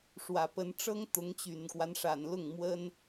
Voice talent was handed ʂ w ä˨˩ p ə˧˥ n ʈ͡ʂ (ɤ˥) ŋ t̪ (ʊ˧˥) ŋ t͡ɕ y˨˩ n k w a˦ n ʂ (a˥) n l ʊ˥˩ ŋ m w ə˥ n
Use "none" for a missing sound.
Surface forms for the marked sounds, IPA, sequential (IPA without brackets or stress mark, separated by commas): ɤ˥, ʊ˧˥, a˨˩